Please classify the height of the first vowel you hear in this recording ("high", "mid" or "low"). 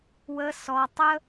mid